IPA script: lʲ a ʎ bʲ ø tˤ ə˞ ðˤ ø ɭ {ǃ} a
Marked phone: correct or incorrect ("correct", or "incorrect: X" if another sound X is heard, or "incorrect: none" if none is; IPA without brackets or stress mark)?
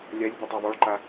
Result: correct